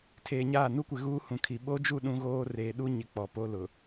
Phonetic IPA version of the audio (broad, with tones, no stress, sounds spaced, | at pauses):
tʰ eː˨ ɲ aː˦˨ n u˦ kʷ ɪ˨ ɣ uː˦ h ũ˨ kʰ i˨ ɓ o˦ d͡ʒ u˦˨ ɗ ũ˦ ɣ oː˦ r eː˨ ɗ u˦ ɲ ɪ˨ k͡p ɔ˨ p o˦ l ʊ˨